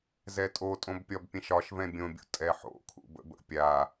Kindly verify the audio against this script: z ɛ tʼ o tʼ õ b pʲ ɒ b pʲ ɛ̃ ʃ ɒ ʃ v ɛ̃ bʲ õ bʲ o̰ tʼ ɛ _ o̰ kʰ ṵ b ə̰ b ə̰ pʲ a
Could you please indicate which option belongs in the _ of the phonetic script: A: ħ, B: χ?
A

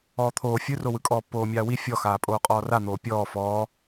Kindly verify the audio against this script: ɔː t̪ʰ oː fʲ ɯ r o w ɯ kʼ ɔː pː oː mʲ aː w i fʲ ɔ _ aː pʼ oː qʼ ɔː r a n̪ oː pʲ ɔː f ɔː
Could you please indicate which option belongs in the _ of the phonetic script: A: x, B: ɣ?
A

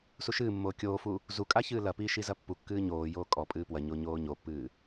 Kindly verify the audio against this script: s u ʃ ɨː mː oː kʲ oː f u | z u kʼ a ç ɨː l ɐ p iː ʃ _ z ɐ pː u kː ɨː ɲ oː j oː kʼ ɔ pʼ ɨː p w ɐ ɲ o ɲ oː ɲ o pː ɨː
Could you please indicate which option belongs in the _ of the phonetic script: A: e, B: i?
B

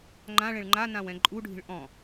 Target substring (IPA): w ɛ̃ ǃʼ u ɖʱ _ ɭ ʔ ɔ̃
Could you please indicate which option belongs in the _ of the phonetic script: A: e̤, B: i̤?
B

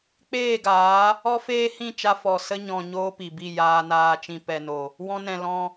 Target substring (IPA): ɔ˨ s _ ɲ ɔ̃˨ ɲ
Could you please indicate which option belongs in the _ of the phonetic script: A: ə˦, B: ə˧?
B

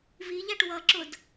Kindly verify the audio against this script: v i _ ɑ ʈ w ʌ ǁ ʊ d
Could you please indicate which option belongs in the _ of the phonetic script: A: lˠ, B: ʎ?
B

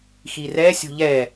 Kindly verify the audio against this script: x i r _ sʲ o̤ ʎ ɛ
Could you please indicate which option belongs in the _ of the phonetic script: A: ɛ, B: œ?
A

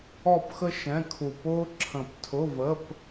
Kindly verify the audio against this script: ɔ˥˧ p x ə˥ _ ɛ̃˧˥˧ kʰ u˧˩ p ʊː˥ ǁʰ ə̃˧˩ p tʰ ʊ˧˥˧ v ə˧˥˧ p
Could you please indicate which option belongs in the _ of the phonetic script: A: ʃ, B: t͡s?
A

